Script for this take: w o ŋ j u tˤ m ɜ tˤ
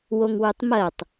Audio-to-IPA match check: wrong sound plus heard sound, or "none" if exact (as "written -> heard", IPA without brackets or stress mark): j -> w